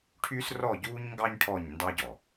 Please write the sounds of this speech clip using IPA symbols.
ʈʰ y˦ s r ɔ˦˨ ɟ uː˦ ɲ ŋ ɡ ɑ˦ ɲ ʈʰ ɔ˦˨ ɲ n d ɑ˦ ɟ ɔ˨

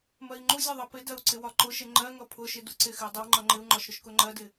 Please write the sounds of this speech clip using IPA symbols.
m ɜ i̯ ŋ͡ǃ u zʲ ʌ ðˤ ʌ p ɪ d ɜ u̯ ǀ ɪ w ɒ ǃ ʊ ʃ ɪ ŋ͡ǃ ɜ ŋ ʌ pʰ ʊ ʃ ɪ d u ǀ ɪ x ɪ u̯ dˤ ɪ w ŋ͡ǃ ʌ ŋ͡ǃ ɪ u̯ ŋ͡ǃ ɒ ʃ ɾ ʊ ʃ k ʊ ŋ͡ǃ ɜ d ɪ

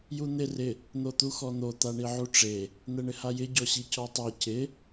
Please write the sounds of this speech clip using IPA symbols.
j u n̪ ɪ r ɪ | n̪ o t̪ u x ɔ n̪ o t̪ a ɳ i ʕ u ʈ͡ʂ e | n̪ ɛ ɳ ɪ h a j ɪ ɟ ɔ ɕ i c ɔ tˤ ɛ c ɪ

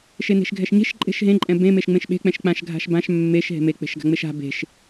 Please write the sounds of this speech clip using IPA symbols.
ʃ e n e̤ ʃ ɡʱ ɛ ʃ ɲ e̤ ʃ ǃʼ e̤ ʃ ɦ ẽ ǃʼ ɛ̃ b ẽ m e ʃ ŋ͡m ẽ ʃ ɓ e̤ k͡p ɛ̃ ʃ k͡p ã ʃ ɡʱ a̤ ʃ b ã ʃ mː e ʃ ɦ e̤ m e k͡p e̤ ʃ ɡ a̤ ŋ͡m e ʃ a̤ b e̤ ʃ

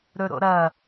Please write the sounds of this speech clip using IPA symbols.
ɾ ɵ ɾ o̰ ɾ ɐ

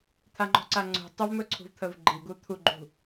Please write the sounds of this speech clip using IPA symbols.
t̪ʰ a ŋ͡ǃ ɔ̤ ǀ a ŋ͡ǀ ṳ tˤ ə v m ɵ ǀʰ ṳ v t̪ʰ ə v ɡ͡ǃ i ɡ u t̪ʰ u ɡ͡ǃ ṳ

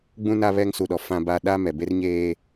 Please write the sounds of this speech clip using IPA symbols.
ɡ͡b ũ˦ n a˦ β ɛ˦ ŋ s u˨ ɗ ɔ˨ f ã˦ b a˦ ɗ a˦ m ɛ˨ b e˦ r ɲ eː˦

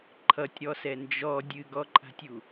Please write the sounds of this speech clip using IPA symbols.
ǃʰ ʌ tʲ ɾ ɔ s ɛ n d͡ʒ ɔ dʲ ɨ ɡ ɔ ǃʼ a̤ tʲ u

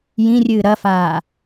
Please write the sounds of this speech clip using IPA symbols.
j ĩ rʲ ɨː ɾ ɐ f aː

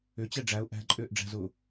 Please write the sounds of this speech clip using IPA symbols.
ʏ t͡ɕ ɛ ɖ͡ʐ æ ʊ̯ ʔ æ̤ ǃʼ ʏː ʔ ɖ͡ʐ æ̤ z ʊː

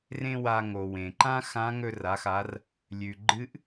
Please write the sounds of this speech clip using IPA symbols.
r ẽ˥ w a˧ ŋ o˩ w ẽ˩ ǃ ã˥ x ã˧˥ ŋ ɵ˧ r a˩˧ x a˩˧ r | lʲ ʉ˩ ɡ͡ǃ ɨ˧˥ ʔ

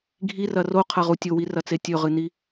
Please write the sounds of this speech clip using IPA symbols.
ɡʱ i r ɐ r o qʰ ɐ ʁ u tʲ o w i r ɐ t͡s e tʲ ɵ ʁ ɨ n i

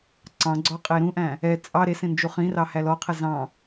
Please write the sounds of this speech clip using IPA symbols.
ǀ ɑ̃ ɡ͡ǀ ɔ qʼ e ɾ ũ ʔ æ̃ | ɛ t͡sʼ ɑ ɾ e s ẽ n d͡ʒ u χ ĩ r ɑ h æ l ɔ qʰ ɛ z ɑ̃

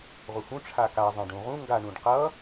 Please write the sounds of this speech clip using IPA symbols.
ʁ u h ũ ʈ͡ʂʰ a k a zˤ ẽ ɖ ũ ʁ ũ ŋ ɡ a ɳ ũ ɖ q ʌ

